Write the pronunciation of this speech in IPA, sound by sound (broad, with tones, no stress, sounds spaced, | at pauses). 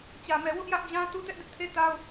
t͡ɕ ä˨ m ɛ˨ w ʊ˦ ʔ j ä˦ ʔ d͡ʑ ã˦ t u˦ t ɛ˦ ʔ d ɪ˦ ʔ tʰ e˦ t a˦ ʊ̯